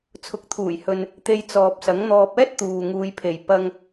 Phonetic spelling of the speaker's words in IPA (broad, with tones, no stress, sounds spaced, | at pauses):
t͡sʰ ʊ˨ k̚ t̪ʰ uː˨˩ j h ɵ˨ n | t̪ e˧ j t͡s ɔː˨ p̚ s ɐ˨˥ ŋ n̪ ɔː˧ p̚ ɛː˥ t̚ t̪ uː˨ ŋ uː˨˧ j pʰ e˨ j p ɐ˧ ŋ